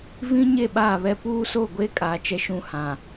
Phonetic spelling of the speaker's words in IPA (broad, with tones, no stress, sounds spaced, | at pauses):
v ĩ˦ ɲ e˦˨ ɓ aː˦˨ β ɛ˦ p uː˦ s o˦˨ ɡʷ e˦ kʼ aː˨ t͡ʃ ɛ˦ ʃ ũ˦ h ã˨